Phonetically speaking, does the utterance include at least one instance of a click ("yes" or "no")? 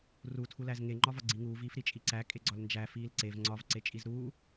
yes